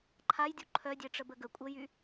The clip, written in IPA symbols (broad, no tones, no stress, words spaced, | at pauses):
ǃʰajdʲu ǃʰœdʲeʈ͡ʂəbə ɡə kʷʼəjy